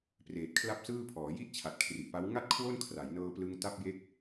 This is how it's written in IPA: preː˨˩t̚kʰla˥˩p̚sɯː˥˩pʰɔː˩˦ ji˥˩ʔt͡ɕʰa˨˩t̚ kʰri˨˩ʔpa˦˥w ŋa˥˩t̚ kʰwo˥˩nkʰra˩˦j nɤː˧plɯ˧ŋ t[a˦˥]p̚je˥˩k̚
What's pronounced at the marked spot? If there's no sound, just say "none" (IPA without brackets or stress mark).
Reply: a˥˩